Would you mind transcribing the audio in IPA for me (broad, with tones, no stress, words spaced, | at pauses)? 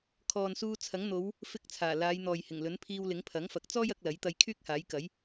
kʰɔː˨nsuː˧t͡sʰɐ˨˥ŋ n̪o˨˧w | fɪ˧k̚ t͡sʰaː˨˩laː˨˧jn̪ɔː˨jhɪ˨˩ŋ lɵ˨˥npʰiː˧wlɪ˨˥ŋ pʰɐ˨˥ŋfɐ˨˥k̚t͡sɔː˥j ɐ˨˥k̚lɐ˨˥j t̪ɐ˧jkʰyː˥k̚haː˨˥jkɐ˨˥j